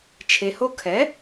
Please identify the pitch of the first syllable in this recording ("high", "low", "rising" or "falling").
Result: low